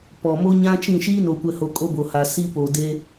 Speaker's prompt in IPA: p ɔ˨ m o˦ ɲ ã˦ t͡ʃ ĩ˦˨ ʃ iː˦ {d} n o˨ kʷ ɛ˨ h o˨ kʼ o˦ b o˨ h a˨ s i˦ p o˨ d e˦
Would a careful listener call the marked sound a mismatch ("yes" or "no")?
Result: yes